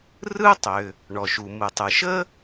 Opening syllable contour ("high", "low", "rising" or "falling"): high